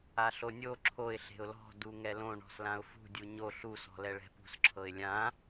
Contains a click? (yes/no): yes